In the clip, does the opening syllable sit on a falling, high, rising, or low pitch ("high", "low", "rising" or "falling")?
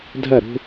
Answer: falling